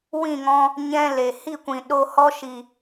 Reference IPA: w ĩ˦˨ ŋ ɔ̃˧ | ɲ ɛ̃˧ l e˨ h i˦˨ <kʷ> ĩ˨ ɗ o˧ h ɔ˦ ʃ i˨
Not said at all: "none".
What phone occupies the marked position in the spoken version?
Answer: kʷ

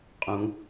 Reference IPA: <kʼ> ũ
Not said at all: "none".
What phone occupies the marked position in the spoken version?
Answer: qʼ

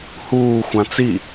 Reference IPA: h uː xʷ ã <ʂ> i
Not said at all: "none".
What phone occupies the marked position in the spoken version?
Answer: t͡s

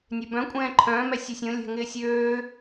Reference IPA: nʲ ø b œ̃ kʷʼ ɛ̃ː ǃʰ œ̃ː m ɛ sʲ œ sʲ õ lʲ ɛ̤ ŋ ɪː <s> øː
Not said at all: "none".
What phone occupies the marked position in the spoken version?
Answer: sʲ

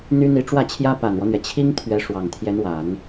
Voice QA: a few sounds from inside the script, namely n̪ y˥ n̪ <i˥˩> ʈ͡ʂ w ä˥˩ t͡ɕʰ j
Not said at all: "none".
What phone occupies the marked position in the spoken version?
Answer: i˧˥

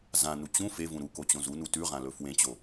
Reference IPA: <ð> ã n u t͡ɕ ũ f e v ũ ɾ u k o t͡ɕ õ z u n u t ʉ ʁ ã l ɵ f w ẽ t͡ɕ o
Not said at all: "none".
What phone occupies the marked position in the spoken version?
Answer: z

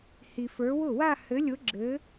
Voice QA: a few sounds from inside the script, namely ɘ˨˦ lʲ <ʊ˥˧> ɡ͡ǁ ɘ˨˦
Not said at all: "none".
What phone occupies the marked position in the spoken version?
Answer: ʊ˨˦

